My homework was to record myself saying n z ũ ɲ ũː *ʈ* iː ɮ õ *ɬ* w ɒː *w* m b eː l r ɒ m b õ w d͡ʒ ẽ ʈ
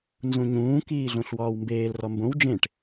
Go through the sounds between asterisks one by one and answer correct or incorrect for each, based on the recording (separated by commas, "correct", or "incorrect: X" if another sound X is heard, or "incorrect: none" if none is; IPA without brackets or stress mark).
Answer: incorrect: k, correct, correct